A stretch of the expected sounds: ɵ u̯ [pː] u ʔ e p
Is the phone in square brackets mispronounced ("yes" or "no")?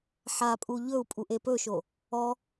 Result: yes